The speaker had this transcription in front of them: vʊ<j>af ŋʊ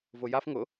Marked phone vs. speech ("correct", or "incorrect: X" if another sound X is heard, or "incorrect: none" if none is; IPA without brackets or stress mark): correct